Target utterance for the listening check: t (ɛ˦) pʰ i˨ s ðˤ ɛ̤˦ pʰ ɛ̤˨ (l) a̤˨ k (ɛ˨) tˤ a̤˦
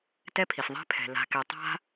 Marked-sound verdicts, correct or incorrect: correct, correct, correct

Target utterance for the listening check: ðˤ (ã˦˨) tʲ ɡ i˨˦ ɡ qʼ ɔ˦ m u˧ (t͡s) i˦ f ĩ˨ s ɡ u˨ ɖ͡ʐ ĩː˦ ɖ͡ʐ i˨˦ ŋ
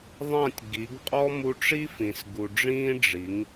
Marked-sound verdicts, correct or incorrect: correct, incorrect: ʈ͡ʂ

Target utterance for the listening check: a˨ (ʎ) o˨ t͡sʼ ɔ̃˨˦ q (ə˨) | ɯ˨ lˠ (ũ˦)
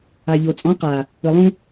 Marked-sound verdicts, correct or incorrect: correct, incorrect: a˨, correct

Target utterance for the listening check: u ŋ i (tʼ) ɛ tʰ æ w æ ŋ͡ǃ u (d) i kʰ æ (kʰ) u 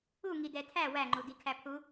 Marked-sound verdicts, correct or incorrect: incorrect: d, correct, incorrect: pʰ

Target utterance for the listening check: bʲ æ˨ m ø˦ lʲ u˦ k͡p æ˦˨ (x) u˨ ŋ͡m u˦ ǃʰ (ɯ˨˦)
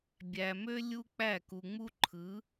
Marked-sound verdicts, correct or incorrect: incorrect: k, correct

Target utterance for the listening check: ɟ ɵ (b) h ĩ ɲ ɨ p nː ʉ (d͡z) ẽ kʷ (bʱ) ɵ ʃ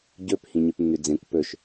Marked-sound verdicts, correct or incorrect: incorrect: p, correct, incorrect: p

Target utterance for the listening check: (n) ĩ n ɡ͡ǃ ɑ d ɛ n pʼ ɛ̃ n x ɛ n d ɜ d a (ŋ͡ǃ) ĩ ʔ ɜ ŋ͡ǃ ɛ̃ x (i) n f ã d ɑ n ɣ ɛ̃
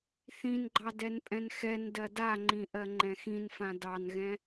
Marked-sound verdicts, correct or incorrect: incorrect: θ, correct, incorrect: ĩ

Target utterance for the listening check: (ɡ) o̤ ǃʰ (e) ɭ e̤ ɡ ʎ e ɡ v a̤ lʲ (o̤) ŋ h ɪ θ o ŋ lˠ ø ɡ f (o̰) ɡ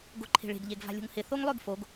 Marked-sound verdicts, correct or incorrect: correct, incorrect: e̤, correct, incorrect: o

